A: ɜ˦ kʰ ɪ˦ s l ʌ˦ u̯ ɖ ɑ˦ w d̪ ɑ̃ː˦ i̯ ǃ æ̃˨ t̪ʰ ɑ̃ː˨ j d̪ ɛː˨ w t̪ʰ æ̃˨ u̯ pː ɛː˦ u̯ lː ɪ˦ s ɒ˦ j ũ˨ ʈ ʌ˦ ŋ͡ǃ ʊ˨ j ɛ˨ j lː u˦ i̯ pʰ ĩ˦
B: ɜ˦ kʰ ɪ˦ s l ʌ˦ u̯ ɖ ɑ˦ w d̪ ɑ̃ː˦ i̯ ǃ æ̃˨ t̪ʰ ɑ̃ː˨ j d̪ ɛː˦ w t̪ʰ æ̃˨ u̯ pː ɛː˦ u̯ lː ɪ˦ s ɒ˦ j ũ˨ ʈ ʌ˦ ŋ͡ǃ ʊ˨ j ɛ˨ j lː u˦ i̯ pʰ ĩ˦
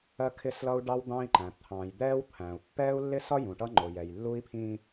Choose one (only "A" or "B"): B